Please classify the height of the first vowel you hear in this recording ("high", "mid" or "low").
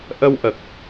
mid